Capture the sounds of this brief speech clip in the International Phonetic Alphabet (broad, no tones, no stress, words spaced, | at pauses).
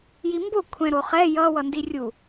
jimbo kʷʰɛ̃ɾoχɛ jʌ wʌndirʲu